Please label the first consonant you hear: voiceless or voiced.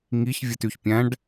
voiced